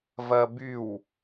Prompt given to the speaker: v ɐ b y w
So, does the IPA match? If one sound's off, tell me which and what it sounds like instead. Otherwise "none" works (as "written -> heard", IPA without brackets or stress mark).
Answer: none